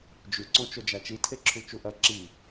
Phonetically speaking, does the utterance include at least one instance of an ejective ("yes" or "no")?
no